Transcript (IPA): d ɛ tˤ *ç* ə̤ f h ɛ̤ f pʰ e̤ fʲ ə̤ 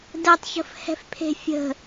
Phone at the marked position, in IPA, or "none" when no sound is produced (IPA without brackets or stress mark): ç